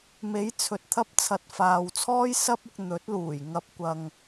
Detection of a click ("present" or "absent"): absent